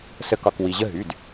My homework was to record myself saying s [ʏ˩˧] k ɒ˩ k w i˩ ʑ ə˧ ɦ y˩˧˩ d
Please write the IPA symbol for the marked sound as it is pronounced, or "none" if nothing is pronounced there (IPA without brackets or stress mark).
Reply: ə˩˧